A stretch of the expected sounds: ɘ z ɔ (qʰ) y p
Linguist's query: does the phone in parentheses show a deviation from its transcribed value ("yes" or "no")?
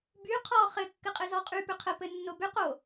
yes